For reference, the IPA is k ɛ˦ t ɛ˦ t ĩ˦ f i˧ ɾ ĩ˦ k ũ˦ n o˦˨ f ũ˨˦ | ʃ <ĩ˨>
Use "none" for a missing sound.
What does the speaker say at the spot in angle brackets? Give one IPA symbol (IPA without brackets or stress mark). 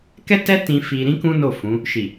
i˨